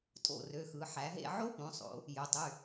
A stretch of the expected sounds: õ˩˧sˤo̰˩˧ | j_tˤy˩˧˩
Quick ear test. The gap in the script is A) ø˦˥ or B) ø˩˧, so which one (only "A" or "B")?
B